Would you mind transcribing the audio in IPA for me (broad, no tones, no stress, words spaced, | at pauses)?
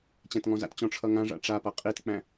t͡ɕæ̃tŋɔ̃za̰tt͡ɕɔ̃ ʈ͡ʂʰʌŋãʐa̰ ʈ͡ʂapʌ qʼitk͡pæ̃